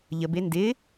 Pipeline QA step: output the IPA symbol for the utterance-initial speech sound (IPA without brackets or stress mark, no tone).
ʎ